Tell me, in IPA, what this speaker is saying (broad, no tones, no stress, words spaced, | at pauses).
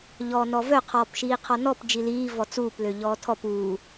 ʎɔːnɔvœ qʰɔːpʃiːqʰɔnɔp d͡ʒiliː vɔt͡suːp løʎɔːtʰɔp uː